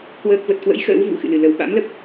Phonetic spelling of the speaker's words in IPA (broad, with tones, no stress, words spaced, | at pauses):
kwəː˦˥k̚ və˨˩t̚kwə̰˧˥j xə̰ː˧˥w vṵ˧˥xɨ̰˧˨ lɨ˧˩lə˨˩w ɓa̰˧˥mlə˦˥p̚